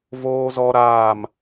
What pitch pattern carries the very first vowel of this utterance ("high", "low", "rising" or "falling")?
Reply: high